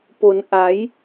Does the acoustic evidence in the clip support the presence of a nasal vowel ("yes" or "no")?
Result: no